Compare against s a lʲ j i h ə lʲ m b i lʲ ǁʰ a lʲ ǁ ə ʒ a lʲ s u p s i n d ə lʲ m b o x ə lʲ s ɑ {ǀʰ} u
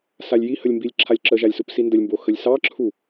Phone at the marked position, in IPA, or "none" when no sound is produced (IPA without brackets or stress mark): ǁʰ